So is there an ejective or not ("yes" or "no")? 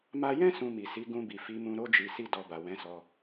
no